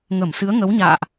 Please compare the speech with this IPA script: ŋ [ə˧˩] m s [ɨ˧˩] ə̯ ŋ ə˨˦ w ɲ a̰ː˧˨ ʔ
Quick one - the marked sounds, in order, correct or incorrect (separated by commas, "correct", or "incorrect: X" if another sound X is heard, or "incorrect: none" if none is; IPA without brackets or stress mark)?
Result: correct, incorrect: ɨ˨˦